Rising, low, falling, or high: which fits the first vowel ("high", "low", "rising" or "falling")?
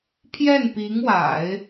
falling